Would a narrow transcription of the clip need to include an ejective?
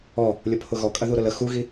yes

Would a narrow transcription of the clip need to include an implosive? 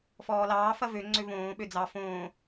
yes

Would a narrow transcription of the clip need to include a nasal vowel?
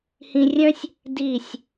yes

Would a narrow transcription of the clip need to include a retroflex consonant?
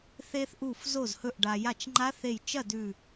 yes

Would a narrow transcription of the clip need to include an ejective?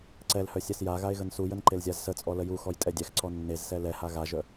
yes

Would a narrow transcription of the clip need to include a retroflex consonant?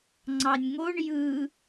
yes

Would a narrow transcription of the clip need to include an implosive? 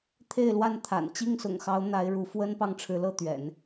no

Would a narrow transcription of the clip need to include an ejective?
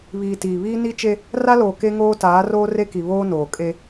yes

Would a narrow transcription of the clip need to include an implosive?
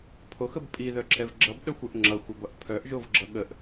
yes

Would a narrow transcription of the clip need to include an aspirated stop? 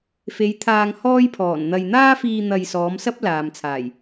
yes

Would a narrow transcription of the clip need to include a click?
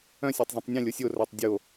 no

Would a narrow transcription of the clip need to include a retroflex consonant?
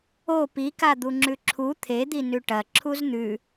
yes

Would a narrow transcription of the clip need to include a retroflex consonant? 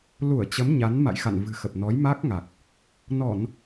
no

